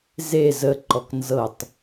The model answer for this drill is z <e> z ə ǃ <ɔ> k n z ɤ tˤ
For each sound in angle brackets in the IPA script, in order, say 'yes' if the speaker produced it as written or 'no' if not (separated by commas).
yes, yes